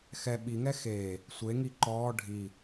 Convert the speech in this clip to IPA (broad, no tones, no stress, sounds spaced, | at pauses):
x ɛ ɓ i ŋ ɛ x eː | sʷ e ŋ i ǃ ɔː ɖʱ i